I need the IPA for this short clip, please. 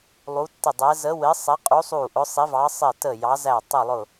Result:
lˠ u˨˦ tː ɪ˧˩ dˤ ɛ˨˦ z ə˨˦ w ɪ˨˦ sˤ ɛ˨˦ qʼ u˨˦ sˤ u˧˩ ʔ ʊ˨˦ sˤ i˨˦ v ɑ˨˦ sˤ ɪ˧˩ t ə˧˩ j ɑ˨˦ z æ˧˩ tˤ ɪ˧˩ lˠ ʊ˧˩

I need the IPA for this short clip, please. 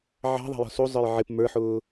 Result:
ʕ ɑ̤ ðˤ ɑ̤ j ɔ̤ s u zˤ ə˞ j ʕ ɪ p m ə˞ ħ ʊː

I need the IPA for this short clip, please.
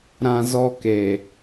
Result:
ɾ ã˦ z ɔ˦ k e˨

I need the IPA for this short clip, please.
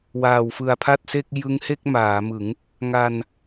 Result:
w aː˨˩ w f ɯ˨˩ a̯ pʰ a˥˩ t̚ s e˥˩ k̚ j ɯ˦˥ ŋ h e˥˩ k̚ m aː˩˦ m ɯ˩˦ ŋ | ŋ a˧ n

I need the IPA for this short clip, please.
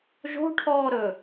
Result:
ʒ o̤ ʈʰ ɔː ɾ ɵː

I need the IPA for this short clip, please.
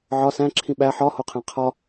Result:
ʕ ɒ s æ̃ ǁʰ ĩ ɓ æ ħ ɒ h o qʰ æ̃ qʰ ɒ

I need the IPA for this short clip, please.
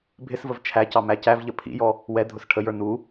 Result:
bʱ ɪ s v ə v t͡ʃʰ æ c ɑ m æ c æ v ʎ ə pʰ ḭ j ɔ | w ɛ dʱ ʊ s ʈʰ ə j ə˞ n u

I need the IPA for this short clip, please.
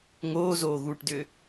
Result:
ŋ oː z oː ɣ uː ʈ d ʏː

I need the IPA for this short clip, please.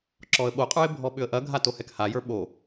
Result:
ǁ ɔ ə̯ ɓ o qʼ ə˞ ɪ̯ bʱ ɔ ɓ ʏ ə̯ ʔ ɐ ɡʱ a t o h ɛ k h a j ə˞ ɓ o

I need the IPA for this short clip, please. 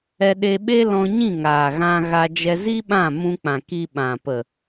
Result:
ɛ˧ ɗ e˧ ɓ e˦ l ɔ̃˧ ɲ ĩ˦˨ ŋ aː˨ ɣ ã˧ ɣ a˧ d͡ʒ ɛ˧ z i˦ ɓ ã˦˨ m ũ˧ k͡p ã˨ k i˧ ɓ ã˨ p ə˨

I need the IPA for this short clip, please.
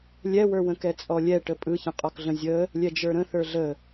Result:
lʲ ɛ w ə˞ w ə̃ k ɛ t͡sʼ ɔ lʲ ɛ ʈ ə pʼ ɯ ç ə̃ qʼ ɔ k ɮ ə̃ zʲ ə | lʲ ɛ d͡ʒ ə˞ ɾ ə̃ θ ə˞ ɮ ə

